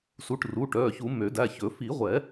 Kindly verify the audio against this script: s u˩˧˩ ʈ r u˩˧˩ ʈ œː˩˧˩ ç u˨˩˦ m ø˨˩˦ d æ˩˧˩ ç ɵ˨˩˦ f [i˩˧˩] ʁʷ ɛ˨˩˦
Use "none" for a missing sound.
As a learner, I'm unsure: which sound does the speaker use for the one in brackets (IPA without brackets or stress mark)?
i˨˩˦